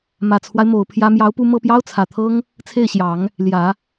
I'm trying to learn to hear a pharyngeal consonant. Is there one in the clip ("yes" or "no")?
no